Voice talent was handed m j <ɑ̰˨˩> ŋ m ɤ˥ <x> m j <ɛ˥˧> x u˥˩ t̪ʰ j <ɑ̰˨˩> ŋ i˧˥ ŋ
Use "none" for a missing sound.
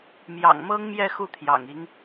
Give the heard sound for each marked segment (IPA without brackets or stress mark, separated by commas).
ɑ̰˨˩, ŋ, ɛ˥˧, ɑ̰˨˩